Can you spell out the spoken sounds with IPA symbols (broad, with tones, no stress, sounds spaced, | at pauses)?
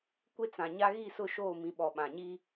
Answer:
kʷ e˦ t͡s ã˨ ɲ a˦ ɣ i˦˨ s ʊ˦˨ ʃ oː˦˨ m ĩ˨ ɓ ɔ˨ ɓ ã˨ ɲ i˦